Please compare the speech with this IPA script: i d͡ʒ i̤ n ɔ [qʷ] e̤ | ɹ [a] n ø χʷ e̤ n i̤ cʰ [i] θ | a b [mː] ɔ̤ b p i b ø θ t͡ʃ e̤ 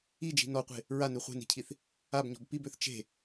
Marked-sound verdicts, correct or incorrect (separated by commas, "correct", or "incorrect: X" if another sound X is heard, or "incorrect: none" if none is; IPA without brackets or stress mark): correct, correct, correct, incorrect: ɲ